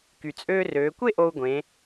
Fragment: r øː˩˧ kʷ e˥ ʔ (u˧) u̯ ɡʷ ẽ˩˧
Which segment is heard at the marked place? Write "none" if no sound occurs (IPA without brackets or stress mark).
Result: o˧